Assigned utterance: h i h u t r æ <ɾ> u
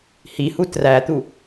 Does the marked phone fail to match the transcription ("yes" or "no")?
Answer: yes